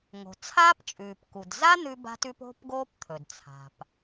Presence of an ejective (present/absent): present